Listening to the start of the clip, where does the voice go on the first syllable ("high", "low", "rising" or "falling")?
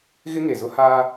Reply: high